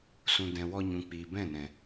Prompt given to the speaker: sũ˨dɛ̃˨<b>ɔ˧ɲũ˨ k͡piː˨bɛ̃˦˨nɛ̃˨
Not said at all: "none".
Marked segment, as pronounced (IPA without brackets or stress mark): w